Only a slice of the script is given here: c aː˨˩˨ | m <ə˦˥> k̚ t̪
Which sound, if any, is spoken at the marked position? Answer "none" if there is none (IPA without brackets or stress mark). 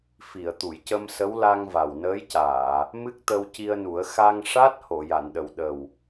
ɨ˦˥